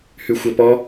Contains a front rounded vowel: yes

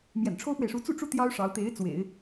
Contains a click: no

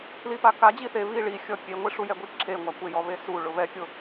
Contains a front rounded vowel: no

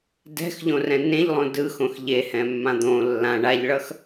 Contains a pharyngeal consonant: no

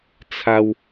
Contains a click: no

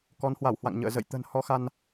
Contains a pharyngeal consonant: no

